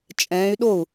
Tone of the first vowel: rising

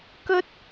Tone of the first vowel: high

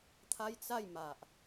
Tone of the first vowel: high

